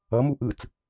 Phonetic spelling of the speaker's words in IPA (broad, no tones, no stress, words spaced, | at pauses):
ʌmu ʔɯt͡s